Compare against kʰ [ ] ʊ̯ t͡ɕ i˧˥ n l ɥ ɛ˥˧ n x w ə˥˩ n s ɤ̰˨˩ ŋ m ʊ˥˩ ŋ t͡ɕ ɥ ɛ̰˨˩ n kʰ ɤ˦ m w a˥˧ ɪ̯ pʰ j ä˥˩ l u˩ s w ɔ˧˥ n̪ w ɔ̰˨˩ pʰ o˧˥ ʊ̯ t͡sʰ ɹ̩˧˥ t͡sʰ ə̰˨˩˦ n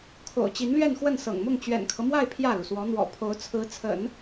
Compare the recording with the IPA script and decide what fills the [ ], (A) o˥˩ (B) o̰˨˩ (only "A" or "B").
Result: B